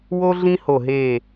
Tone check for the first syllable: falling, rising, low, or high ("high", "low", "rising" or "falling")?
high